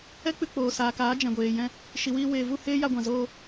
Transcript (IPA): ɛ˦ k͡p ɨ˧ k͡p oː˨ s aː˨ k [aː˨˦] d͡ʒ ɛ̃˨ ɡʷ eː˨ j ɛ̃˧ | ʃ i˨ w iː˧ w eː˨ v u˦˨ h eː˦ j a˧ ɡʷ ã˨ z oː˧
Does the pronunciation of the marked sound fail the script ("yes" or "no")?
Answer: no